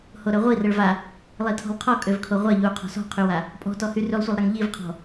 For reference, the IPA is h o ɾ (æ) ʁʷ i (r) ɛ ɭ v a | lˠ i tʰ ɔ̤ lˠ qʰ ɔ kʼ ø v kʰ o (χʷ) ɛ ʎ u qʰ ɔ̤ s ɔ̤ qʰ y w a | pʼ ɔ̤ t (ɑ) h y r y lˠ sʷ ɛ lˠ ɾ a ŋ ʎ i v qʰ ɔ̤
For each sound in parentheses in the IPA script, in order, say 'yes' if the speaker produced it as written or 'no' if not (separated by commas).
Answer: no, yes, no, no